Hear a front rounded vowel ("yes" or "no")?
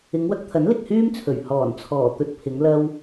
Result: yes